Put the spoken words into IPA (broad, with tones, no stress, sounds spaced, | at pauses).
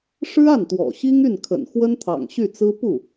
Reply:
ʂ ɻ̩˥ a˥˩ n t̪ w ɔ̰˨˩ ɕ i˥ ŋ y˥˩ n kʰ ə̰˨˩ n x w ə˥ n t̪ʰ ɑ̰˨˩ ŋ ɕ y˥˩ t͡s ɹ̩˥ p u˥˩